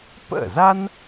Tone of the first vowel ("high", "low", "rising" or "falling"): falling